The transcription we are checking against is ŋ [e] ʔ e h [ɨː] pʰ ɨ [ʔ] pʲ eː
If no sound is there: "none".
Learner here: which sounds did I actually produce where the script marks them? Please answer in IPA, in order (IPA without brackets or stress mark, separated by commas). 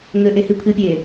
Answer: ɘ, ɨ, none